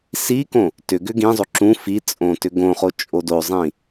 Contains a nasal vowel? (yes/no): yes